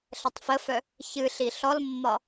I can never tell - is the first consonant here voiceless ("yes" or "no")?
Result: yes